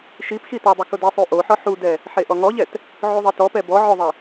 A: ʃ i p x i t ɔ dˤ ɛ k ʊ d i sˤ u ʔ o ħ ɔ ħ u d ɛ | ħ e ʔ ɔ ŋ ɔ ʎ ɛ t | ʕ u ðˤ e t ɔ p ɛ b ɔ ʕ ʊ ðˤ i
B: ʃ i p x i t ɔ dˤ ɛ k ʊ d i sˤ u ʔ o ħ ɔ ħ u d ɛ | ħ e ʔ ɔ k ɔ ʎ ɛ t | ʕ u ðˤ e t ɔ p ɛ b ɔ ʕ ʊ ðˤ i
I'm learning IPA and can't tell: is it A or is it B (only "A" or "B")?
A